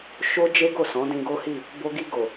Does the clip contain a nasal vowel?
yes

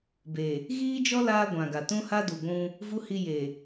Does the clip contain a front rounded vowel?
no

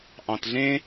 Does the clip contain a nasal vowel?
yes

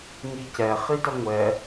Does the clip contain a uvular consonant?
yes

